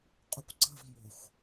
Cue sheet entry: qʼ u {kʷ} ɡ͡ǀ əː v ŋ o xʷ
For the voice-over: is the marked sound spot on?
yes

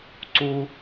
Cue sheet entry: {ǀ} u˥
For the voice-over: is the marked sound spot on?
yes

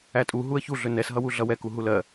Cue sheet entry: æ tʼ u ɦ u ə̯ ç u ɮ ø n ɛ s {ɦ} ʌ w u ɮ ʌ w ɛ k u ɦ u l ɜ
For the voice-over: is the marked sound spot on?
yes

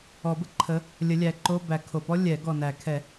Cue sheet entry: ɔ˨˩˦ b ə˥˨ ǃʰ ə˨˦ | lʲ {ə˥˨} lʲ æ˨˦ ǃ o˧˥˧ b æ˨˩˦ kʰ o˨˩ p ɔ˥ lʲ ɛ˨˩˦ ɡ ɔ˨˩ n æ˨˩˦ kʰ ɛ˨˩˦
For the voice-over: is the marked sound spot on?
no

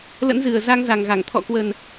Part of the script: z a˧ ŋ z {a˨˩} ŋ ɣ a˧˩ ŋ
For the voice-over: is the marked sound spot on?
yes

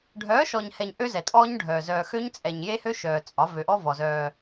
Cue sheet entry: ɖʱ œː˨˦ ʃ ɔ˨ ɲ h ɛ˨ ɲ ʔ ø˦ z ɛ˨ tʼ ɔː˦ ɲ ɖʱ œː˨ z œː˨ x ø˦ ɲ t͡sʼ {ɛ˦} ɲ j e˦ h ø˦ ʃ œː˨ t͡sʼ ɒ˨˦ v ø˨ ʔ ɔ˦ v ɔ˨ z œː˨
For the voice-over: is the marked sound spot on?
no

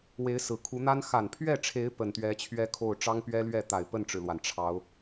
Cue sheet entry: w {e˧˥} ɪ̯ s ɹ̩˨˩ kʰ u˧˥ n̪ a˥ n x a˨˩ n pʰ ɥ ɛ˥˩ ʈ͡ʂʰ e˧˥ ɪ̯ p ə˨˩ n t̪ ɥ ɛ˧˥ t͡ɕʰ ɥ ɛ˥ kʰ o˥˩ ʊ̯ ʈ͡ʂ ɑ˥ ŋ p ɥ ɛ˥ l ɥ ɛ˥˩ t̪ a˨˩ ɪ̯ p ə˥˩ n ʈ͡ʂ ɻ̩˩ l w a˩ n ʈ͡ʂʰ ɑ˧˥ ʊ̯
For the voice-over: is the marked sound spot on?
yes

